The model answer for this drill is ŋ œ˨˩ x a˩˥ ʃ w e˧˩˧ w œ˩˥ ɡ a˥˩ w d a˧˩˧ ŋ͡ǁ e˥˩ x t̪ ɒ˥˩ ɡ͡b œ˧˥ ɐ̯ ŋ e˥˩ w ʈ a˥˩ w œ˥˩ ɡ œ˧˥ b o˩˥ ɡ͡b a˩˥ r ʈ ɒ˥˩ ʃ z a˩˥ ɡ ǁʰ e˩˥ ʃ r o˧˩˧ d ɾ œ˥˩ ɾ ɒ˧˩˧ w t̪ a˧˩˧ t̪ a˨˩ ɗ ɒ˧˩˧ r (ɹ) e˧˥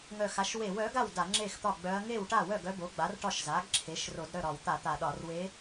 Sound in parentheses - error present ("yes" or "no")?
yes